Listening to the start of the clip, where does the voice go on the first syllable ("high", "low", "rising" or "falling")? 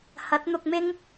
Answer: rising